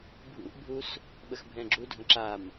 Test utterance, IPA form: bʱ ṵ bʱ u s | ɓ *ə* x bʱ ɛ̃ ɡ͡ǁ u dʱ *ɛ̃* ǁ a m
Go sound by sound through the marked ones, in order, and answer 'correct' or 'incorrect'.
correct, incorrect

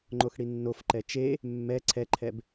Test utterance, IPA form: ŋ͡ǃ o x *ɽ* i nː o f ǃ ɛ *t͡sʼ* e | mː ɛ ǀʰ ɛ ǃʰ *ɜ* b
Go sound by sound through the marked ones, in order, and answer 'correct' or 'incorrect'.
correct, incorrect, incorrect

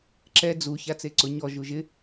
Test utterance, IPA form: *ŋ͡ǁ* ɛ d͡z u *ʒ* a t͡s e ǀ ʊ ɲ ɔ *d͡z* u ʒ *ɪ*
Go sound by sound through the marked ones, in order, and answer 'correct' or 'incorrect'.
incorrect, incorrect, incorrect, correct

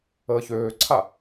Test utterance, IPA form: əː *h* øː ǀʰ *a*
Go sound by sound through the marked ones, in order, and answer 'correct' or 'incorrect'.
incorrect, correct

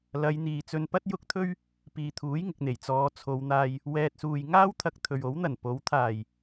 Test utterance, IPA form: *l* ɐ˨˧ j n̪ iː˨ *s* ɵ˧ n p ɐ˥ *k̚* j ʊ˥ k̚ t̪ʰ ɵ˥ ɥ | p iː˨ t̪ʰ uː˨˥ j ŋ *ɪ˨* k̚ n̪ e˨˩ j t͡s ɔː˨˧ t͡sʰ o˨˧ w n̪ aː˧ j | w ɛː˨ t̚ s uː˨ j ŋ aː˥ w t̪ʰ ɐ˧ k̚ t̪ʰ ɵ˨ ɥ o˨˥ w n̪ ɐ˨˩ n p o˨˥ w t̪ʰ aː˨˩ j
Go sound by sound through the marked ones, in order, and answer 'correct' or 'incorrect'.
correct, incorrect, incorrect, correct

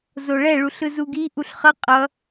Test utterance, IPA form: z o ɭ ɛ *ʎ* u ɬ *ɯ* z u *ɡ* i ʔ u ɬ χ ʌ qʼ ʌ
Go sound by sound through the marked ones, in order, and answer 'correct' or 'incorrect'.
incorrect, correct, correct

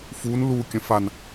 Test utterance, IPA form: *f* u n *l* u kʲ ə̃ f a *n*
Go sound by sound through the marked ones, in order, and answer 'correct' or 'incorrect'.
correct, correct, correct

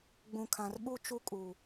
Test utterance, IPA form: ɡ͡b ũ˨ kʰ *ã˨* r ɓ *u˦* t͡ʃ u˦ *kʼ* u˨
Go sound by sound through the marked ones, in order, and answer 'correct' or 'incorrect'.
correct, correct, correct

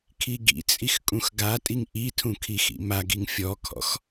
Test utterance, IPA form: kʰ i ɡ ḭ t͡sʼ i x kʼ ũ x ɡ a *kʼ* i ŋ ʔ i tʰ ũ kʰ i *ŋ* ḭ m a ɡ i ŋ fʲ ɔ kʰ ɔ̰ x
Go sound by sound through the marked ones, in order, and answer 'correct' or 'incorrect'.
incorrect, incorrect

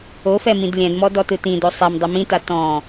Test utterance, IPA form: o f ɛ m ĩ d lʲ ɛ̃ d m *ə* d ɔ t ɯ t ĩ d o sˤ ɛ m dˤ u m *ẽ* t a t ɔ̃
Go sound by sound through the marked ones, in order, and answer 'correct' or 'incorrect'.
incorrect, incorrect

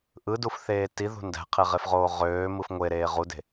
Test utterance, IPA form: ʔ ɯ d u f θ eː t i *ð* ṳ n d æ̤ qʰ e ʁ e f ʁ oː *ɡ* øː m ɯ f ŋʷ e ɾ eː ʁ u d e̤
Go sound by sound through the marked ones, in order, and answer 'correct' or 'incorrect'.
correct, incorrect

